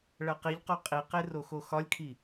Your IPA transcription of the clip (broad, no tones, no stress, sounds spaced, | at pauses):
ɭ æ q i ʎ q o qʼ i q e r o x o x ɒ lʲ kʰ i